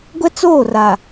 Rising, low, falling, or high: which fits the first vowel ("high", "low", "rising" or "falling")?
high